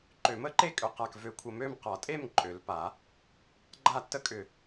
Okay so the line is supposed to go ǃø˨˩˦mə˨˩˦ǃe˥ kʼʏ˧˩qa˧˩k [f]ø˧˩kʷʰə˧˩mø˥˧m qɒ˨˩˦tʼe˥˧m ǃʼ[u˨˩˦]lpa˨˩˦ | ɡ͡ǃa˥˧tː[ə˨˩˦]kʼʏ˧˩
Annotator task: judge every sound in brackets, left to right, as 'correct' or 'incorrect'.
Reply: incorrect: v, incorrect: ø˨˩˦, incorrect: ə˥

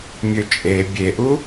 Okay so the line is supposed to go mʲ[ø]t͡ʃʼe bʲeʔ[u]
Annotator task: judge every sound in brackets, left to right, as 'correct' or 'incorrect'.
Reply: correct, correct

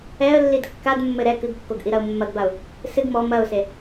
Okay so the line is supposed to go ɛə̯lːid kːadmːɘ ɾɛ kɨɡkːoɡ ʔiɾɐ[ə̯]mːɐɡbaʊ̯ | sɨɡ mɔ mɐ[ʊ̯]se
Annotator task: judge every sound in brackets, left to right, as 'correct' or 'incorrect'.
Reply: incorrect: ʊ̯, correct

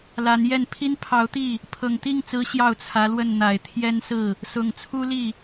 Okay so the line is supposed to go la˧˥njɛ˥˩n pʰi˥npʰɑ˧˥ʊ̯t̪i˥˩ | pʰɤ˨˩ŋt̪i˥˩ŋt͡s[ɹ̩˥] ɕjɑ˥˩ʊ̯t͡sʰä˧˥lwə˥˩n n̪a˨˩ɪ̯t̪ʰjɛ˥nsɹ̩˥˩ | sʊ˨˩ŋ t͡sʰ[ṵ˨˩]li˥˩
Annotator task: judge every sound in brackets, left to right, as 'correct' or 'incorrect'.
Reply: incorrect: ɹ̩˧˥, incorrect: u˥

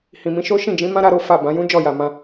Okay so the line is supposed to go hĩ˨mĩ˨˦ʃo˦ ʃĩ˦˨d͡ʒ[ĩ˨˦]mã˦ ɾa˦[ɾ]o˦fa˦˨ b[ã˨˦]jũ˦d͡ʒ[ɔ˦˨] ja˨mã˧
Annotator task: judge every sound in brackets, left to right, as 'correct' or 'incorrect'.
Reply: correct, correct, correct, correct

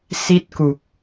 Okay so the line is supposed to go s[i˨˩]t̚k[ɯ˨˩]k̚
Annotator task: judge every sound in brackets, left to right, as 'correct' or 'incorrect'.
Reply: incorrect: i˥˩, incorrect: u˨˩

